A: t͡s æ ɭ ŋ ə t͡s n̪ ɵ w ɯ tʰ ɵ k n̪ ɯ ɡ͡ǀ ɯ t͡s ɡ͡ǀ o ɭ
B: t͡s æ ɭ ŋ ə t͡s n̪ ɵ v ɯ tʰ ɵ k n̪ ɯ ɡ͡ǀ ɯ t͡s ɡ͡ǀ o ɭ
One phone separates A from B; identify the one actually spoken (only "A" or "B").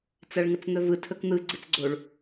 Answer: B